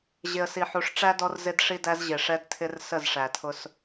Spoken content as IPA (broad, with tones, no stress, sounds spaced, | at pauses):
ʑ ɪ˨ ə̯ s i˨ ħ u˨ ʂ ʈ͡ʂ æ˦ d ɔ˦ r z ɪ˦ d ʂ i˦ d æ˦ z ʑ ɪ˨ ʂ ɛ˦ d tʰ ɪ˦ r s ə˦˨ z ʂ æ˨ tʰ ʊ˦ s